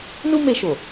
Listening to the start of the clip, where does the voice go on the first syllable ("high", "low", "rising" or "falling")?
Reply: high